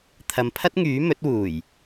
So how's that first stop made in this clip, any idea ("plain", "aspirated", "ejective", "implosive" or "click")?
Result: aspirated